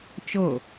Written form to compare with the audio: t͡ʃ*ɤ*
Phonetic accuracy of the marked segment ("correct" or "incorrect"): correct